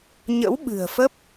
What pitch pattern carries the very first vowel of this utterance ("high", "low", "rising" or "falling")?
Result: rising